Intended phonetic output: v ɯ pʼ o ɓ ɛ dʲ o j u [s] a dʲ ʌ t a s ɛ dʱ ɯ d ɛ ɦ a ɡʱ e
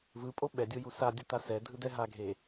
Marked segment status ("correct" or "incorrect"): correct